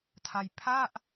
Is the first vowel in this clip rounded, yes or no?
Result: no